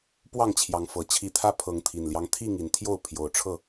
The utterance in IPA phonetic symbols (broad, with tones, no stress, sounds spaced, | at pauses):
p w ɑ˥˨ ŋ t͡ɕʰ j ɑ˨˦ ŋ f ɤ˨˩ t͡ɕʰ i˨˦ t̪ʰ ä˦ pʰ ɤ˨˦ ŋ t̪ʰ i˨˩ n l j ɑ˦ ŋ t̪ʰ i˥˨ ŋ i˨˩ n t̪ʰ j o˥˨ ʊ̯ pʰ j o˨˩ ʊ̯ ʈ͡ʂʰ ɤ˥˨